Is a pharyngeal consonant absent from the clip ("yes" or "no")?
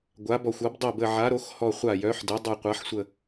no